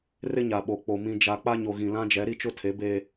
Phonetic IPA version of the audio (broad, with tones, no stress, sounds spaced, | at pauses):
r ɪ˦ ɲ a˨ ɓ o˨ k͡p o˨ m ĩ˨ d͡ʒ a˨ k͡p a˦ ɲ o˨ ɣ ĩ˨ l ã˦ d͡ʒ ɛ˨˦ ɾ i˦ t͡ʃ ʊ˦ tʰ e˨˦ b eː˦